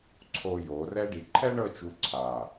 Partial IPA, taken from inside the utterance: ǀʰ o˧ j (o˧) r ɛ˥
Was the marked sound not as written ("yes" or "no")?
yes